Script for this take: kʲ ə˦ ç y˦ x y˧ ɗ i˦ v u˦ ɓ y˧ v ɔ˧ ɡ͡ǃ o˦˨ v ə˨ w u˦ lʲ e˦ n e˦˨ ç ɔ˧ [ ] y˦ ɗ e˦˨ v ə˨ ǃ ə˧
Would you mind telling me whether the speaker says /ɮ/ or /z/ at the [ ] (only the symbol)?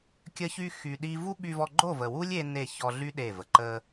ɮ